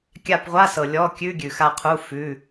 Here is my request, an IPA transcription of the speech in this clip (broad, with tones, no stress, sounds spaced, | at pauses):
kʲ a˦˨ p ʁʷ a˧˥˧ s ɤ˨ lʲ ɔ˧˥˧ kʲ ʉ˧˥˧ ɡʲ ʉ˨ x a˦˨ qʰ u˧˥˧ f ʉ˧˥˧